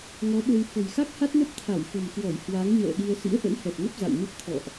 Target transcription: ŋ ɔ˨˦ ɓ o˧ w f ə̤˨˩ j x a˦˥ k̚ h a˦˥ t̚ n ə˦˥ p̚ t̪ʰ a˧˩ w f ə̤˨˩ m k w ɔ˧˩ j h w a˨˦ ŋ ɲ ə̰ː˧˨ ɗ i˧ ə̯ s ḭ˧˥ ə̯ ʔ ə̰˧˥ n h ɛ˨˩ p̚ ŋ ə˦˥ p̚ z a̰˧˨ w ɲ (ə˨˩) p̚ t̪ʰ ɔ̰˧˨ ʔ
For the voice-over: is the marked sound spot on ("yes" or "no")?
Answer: no